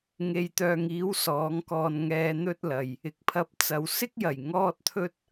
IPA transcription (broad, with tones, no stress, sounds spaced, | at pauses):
ŋ e˨ j t̪ œː˨ ŋ iː˨˥ w s ɔː˨˥ ŋ k ɔː˧ n ŋ ɛː˧ n̪ ɵ˥ t̚ l ɐ˨ j | ɪ˨ k̚ pʰ ɐ˧ p̚ t͡s ɐ˨ w s ɪ˥ k̚ j ɐ˨˩ j ŋ ɔː˥ t̚ t̪ʰ ɵ˥ t̚